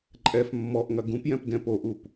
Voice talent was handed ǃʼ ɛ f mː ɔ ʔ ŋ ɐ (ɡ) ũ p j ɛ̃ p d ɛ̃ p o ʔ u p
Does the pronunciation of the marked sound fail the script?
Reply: no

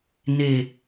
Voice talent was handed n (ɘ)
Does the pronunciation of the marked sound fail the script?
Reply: yes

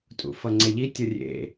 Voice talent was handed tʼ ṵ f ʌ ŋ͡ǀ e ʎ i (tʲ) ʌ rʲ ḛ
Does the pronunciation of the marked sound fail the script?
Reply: no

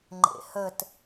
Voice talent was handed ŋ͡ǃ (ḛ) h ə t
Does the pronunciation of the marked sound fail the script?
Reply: no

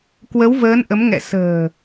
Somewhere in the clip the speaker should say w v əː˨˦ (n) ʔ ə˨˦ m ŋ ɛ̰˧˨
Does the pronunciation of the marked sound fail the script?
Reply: no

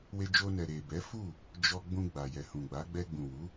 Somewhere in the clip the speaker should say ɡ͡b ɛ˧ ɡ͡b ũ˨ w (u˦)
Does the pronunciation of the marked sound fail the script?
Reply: yes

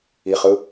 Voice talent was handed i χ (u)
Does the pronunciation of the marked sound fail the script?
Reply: yes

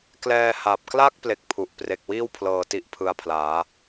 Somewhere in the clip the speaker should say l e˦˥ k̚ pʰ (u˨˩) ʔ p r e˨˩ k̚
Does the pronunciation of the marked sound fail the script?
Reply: no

